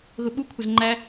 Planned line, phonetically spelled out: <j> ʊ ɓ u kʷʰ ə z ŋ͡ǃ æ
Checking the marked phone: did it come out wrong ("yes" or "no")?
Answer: yes